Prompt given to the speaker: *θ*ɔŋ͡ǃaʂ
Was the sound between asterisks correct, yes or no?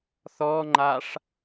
yes